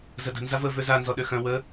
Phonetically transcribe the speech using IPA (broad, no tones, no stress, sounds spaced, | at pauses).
z ə d ə̤ n z a v ə v ø z a n z ɔ ɗ ø x œ̃ w ə